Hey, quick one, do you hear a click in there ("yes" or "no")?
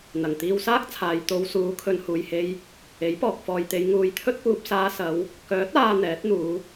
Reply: no